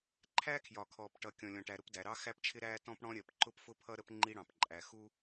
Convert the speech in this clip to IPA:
ǃʰ æ˥ kʰ j ɒ˩ kʰ ɔː˩ p ʈ ʌ˩ kʲ ɔ̃˩ lʲ ɔ̃˩ ʈ æ˩ ɾ ʊ˥ p d æ˩ ɾ ɑ˥ x æ˥ p t͡ʃʰ ɪ˥ ɾ æː˥ t ɔ̃˥ p ɽ ɔ̃˥ ɾʲ ɜ˩ p ǃ ʊ˥ p f ʊ˥ pʰ ʌ˥ ɾ ə˥ p ŋ͡ǃ i˥ ɽ ɑ̃˩ p ǃʼ æ˩ x u˥

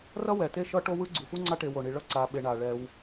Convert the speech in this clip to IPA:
r ʌ˥ w ɛ˩ t e˥ ʃ ʌ˥ ʈ o˥ w ɯ˥ ɡ͡ǀ u˩ f u˥ ŋ͡ǀ a˦ ʈ e˨ w o˩ ɳ i˩ ɭ ʌ˥ ǀ a˨ ɓ e˨ ɳ a˩ ɭ ɛ˨ w

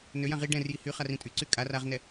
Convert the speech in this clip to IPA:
n ø j ã ʁ i ɖ ɛ̃ r j i h y χ a r ĩ tʼ y ǀ y kʼ a r a ʁ n ɛ

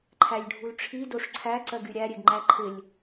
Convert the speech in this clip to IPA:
ǃʰ æ lʲ ɖʱ u l ʈ͡ʂʰ i d o ʂ ǀʰ æ ǀ ɜ ɡ y ɾʲ æ ɾʲ e ɡ ŋ͡ǃ æ ǃʰ ɪ lʲ

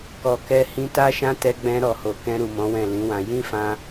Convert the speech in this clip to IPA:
k ɔ˨ k ɛ˧ h ĩ˧ t a˦ ʃ ã˦ t ɛ˧ ɡ͡b ɛ̃˧ ɾ ɔ˨ h o˨ k ɛ̃˧ ɾ u˨ m ɔ̃˨˦ w ɛ̃˦˨ l ĩ˨˦ w ã˧ j ĩ˦ f ã˧

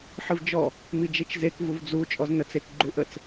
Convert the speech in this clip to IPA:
ħ ɨ v d͡ʒ ɔ | m i d͡ʒ e t͡ʃ z e k v u v d͡z u t͡ʃʼ ɔ z n ə t͡s e k ɡ͡ǃ u ʔ ə t͡s

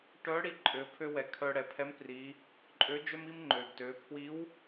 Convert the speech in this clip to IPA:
ʈ œ˧˥ ɽ i˧ ǃʼ ø˩˧ pʰ ø˧ w ɛ˩ kʰ œ˧ ɽ ɛ˩ pʰ ɛ˧˥ m p r i˩˧ | ǃʼ ø˧˥ d͡ʒ œ˥ m i˥ m ŋ͡ǃ ø˩ ɡ t ø˩˧ pʰ w i˧˥ w

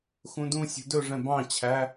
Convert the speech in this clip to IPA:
x ũ d ũ sʲ ṳ d ɵ ʐ ɛ̃ b ɑ̃ t͡ɕʰ æ

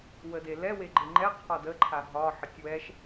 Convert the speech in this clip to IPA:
w ə d e l ɛ w e ɡ͡ǃ e ŋ͡ǃ ɛ qʰ ɒ d ə ǃʰ a ɦ ɒ ħ ə tʲ w ɛ ʃ

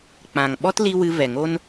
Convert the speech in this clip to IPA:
k͡p ã˨ ŋ ɓ ɔ˦ t l i˧ w ɨ˧ v ɛ˨ ŋ o˦ n

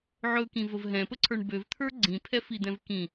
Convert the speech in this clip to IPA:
ʕ ɵ k ĩ v ə v ɦ ɛ̃ p ə ǀʰ ə˞ ɳ b ø v t̪ʰ ə˞ ɡ͡ǀ ĩ pʰ ɛ f i d̪ ɛ̃ v k ĩ

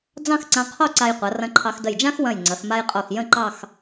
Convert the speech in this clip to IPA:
d͡z ɑ̃˥˧ x ǀ ã˧ qʰ o˥˧ ǀ a˧ j qʷ ɐ˩˧ r ɐ̃˧ ǃʰ ɑ˧ x d ə˧˩ j d͡ʒ ã˥ x w ɐ̃˧˩ j ŋ͡ǀ ɐ˩˧ x m a˧ j qʼ o˧˩ x j ə̃˥˧ ǃ ɑ˥˧ x

